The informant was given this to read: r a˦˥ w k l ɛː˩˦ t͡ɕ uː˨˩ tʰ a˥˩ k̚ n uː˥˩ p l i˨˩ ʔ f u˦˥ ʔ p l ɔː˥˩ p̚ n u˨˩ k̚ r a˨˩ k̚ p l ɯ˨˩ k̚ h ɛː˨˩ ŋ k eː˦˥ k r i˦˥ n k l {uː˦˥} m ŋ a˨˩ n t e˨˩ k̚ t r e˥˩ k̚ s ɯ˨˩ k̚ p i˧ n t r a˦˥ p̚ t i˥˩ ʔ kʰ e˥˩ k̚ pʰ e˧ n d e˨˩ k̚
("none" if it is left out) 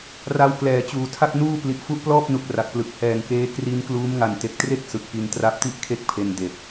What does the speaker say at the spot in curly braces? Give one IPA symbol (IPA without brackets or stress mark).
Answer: uː˦˥